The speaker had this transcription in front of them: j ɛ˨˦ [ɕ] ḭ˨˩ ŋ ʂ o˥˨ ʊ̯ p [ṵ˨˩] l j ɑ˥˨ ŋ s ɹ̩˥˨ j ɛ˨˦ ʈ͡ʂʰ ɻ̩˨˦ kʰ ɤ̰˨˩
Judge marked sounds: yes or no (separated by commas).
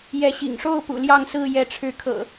yes, yes